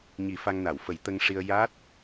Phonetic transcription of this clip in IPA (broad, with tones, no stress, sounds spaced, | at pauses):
ɲ i˨˩˦ f a˧ ŋ n a˨˩˨ w f ə˨˩˦ j t̪ ə˧ ŋ ʂ i˧ ə̯ j a˦˥ t̚